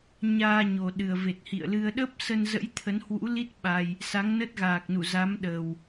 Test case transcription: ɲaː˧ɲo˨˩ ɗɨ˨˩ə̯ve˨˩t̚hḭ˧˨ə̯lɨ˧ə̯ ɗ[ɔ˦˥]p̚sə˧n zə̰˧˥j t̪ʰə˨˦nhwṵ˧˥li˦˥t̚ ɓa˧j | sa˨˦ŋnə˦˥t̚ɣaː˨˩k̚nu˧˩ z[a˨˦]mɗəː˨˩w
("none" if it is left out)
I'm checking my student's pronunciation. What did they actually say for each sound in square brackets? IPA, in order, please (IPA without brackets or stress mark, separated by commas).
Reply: ə˦˥, a˨˦